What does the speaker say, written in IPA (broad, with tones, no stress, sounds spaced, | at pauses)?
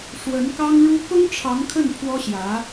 ʂ w ə˧˥ n k ɑ˥ ŋ ɻ u˥ k ʊ˥ ŋ ʈ͡ʂʰ ɑ˧˥ ŋ kʰ ə˥˩ n pʰ w ɔ˥ ɕ j ä˧˥